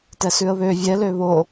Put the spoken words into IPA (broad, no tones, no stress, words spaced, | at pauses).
tɛsʉə̯βø vʲɛ løβo